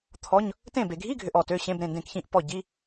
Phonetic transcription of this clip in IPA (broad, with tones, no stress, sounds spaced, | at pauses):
t̪ʰ ɔ˧˥˧ ɲ | t ẽ˥˩ b e˨ ɡʱ i˧˥˧ ɡʱ ʏ˨ ʔ ɔ˨ t ø˧˥˧ ɕ ẽ˧˥˧ b ɾ ẽ˥˩ n d ẽ˥˩ k ç ĩ˥˩ ʔ p ɔ˥˩ ɟ i˧˥˧